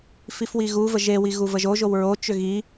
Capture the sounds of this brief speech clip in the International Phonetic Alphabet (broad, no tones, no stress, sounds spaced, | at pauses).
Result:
f i f w i ɣ u v ə ʒ e w i ɣ u v ə ʒ o ʒ o w ɹ o t͡ʃ ʏ ɣ i